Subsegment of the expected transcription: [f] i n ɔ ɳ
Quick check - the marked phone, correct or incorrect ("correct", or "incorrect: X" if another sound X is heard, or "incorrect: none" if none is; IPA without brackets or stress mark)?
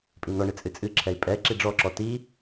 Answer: incorrect: pʼ